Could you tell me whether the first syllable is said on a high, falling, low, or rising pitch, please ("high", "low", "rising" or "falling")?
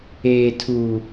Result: high